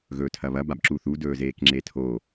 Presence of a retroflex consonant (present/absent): absent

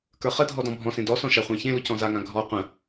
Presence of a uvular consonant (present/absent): present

